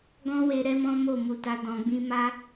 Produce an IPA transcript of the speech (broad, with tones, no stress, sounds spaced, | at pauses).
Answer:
ɡ ɔ̃˦ w e˧ ɾ ɛ˦ m ɔ̃˦ m o˦˨ m u˧ t a˦ d ɔ̃˧ ɡ͡b ĩ˦ m a˦